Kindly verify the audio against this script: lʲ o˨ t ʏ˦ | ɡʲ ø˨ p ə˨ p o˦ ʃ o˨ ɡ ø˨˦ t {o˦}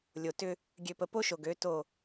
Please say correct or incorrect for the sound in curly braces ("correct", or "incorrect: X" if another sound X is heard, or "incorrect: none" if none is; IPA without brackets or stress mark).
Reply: incorrect: o˦˨